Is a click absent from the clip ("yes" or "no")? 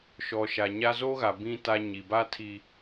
yes